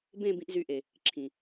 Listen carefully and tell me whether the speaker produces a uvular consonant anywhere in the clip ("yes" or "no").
no